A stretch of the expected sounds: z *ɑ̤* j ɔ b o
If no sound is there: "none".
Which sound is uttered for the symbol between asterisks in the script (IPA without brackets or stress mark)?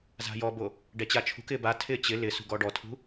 a̤